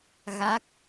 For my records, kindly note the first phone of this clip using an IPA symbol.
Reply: ɣ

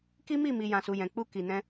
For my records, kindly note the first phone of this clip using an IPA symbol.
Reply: k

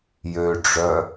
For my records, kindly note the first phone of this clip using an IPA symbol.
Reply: j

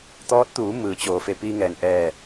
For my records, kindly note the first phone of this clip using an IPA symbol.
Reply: t̪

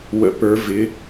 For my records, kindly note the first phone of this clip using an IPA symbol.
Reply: w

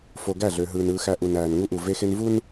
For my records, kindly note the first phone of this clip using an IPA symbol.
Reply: f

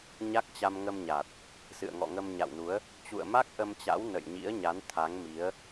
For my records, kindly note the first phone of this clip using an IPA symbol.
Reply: ɲ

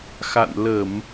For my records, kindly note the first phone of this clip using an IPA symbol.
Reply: x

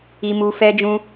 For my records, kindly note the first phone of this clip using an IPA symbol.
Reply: i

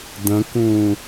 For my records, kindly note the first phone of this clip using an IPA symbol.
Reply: d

